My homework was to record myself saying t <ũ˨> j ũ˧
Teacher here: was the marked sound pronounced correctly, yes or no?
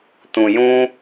yes